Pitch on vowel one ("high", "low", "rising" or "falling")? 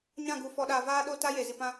falling